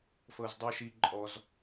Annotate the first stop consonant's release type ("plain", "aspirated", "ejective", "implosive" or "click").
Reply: plain